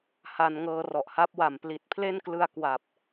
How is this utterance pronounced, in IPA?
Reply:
h a˧ n ŋ ɤː˧ r ɔ˨˩ ʔ h a˦˥ p̚ w a˨˩ m p l i˨˩ t̚ pʰ l e˥˩ n k l ɯ˧ a̯ k w a˨˩ p̚

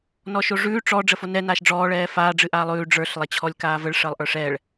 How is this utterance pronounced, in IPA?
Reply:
n ɔ ʃ o ʐ ʉː ʈ͡ʂ ɔ ɖ͡ʐ ə f o n ɛ n aː ʃ ɖ͡ʐ ɔː ɭ ɛː f aː ɖ͡ʐ ɨ ʔ aː lˠ ʉː ɖ͡ʐ ə˞ ɬ lˠ ɛ t͡ɕʰ ɔ lʲ k aː v ə ɭ ʂ əː lˠ ʔ ə˞ ʂ ɛː ɭ

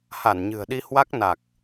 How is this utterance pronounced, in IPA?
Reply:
h a˧˩ n ɲ ɨ̤˨˩ ə̯ ɗ i˧ h w a˦˥ k̚ n a˨˩ k̚

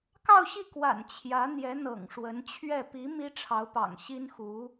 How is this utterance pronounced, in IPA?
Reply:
k ɑ˥˧ ʊ̯ ɕ i˥˩ k w a̰˨˩ n t͡ɕʰ j ä˧˥ n̪ j ɛ˧˥ n̪ ɤ̰˨˩ ŋ ʂ w ə˧˥ n t͡ɕʰ ɥ ɛ˥˩ p i˧˥ m i˥ ʈ͡ʂʰ ɑ˧˥ ʊ̯ p ɑ̰˨˩ ŋ ɕ i˥ n x u˧˥

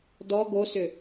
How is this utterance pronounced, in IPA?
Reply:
d ɔ ɡ o s ʏ

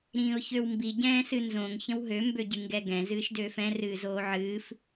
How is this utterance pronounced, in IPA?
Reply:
ɾ ĩː ʊ̯ ç ø w m b i ɟ ɛ̃ː s ɨ n z õ ŋ ç ə̃ w ɦ ø m b ø ɟ ɨ ŋ ɡ ɛ ɡ ɛ̃ z ɨː ʃ d øː f ɛ̃ r ɨː z oː ʕ ɨː f

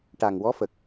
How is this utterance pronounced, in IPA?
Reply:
ʈ a˨˩ ŋ w ɔ˧˥ f ə˨˩ k̚

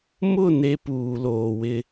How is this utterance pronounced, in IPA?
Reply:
m ʊ˦˨ n e˦ p uː˨ l oː˨ w ɪ˦

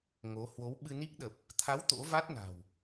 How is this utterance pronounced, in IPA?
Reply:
ŋ o˨˦ h w o˨˦ w ɓ ɨ˧ n i˦˥ k̚ ɗ ə˨˩ p̚ | t̪ʰ a˨˦ w t̪ o̰˧˥ v a˦˥ t̚ n a̤˨˩ w

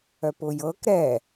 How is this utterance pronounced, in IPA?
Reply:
œ p ʊ j ɤ k ɾ ɛ

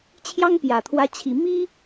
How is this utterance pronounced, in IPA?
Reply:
t͡ɕʰ j ɑ˥ ŋ p j ä˨˩ t̪ʰ w ä˧˥ t͡ɕʰ i˨˩ m i˥

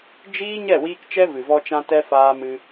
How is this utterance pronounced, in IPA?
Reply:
d͡ʒ iː˦ ɲ ɛ˦˨ w iː˧ k t͡ʃ ɛ˦ v ɨ˨ v ɔ˧ t͡ʃ ã˧ t ɛ˧ f aː˧ m ɨ˧

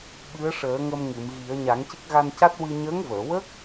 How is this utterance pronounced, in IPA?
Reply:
ɓ ɨ˧˥ ə̯ ʂ əː˨˩˦ ŋ ə˧ m ŋ ɨ˨˩˨ m ɣ i˨˩˦ ə̯ ɲ a˨˩˦ ŋ c e˦˥ k̚ ɣ a˧ n c a˦˥ t̚ w ɨ˧ ɲ əː˧˥ ŋ v əː˨˩˨ w ə˦˥ k̚

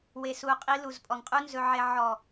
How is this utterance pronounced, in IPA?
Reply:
w e˨ s u˨ qʼ i˧ l u˨ z pʼ ɔ˨ ŋ qʼ u˦ n z ɵ˧ ʕ e˧ ʕ ɔ˨

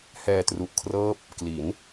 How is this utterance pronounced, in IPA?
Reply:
h ɛː˧ t r u˨˩ ʔ kʰ r ɤː˦˥ p̚ | k l i˩˦ n

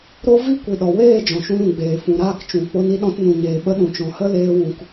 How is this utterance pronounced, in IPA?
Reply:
ɾ o˦ v i˦ kʷ i˨ ɗ ɔ˨ w eː˦˨ d͡ʒ ɔ̃˨ ʃ ũ˧ l ũ˨ ɡ͡b eː˨ f ũ˨ ɾ aː˦˨ k t͡ʃ ũ˨ k͡p o˧ n i˧ ɗ ɔ̃˧ t n ũ˨ ɲ eː˨ ɓ ə˧ ɗ ũ˨ t͡ʃ ɔ̃˨ h ə˦ l eː˧ w ũ˨ k

